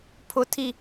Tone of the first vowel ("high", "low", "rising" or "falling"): high